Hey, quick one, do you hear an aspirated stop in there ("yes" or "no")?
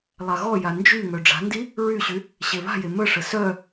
no